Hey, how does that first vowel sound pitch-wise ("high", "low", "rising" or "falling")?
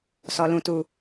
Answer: low